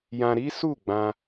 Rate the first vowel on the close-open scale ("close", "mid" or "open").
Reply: open